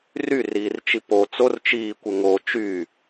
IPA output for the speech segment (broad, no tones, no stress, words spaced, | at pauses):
ryriːr t͡ʃipo t͡sor t͡ʃiːkʷɪ ŋo t͡ʃy